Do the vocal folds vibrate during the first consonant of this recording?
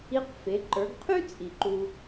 no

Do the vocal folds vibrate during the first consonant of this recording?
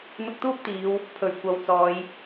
yes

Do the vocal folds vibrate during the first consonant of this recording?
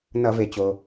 yes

